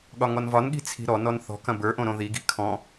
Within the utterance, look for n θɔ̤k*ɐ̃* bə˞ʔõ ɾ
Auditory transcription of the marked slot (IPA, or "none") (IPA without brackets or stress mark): ɐ̃